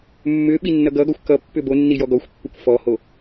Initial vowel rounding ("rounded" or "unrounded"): rounded